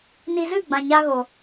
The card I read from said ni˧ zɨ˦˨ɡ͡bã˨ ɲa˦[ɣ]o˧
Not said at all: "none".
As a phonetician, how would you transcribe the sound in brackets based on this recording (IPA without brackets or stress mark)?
ɣ